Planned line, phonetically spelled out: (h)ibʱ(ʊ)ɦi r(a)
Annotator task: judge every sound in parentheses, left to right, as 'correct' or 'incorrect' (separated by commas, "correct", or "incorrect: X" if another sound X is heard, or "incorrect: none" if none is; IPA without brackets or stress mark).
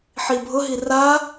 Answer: incorrect: ħ, correct, correct